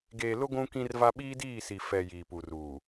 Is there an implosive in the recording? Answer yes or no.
yes